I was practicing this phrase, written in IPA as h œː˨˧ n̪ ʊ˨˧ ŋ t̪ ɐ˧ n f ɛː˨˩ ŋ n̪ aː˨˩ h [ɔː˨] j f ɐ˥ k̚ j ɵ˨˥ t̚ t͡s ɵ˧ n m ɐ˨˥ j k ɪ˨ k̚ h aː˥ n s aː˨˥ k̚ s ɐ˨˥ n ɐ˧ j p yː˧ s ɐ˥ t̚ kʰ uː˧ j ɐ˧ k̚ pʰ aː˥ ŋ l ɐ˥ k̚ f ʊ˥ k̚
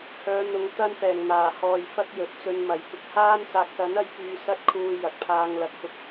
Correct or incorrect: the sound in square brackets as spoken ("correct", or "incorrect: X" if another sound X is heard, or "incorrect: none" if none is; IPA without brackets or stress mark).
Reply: correct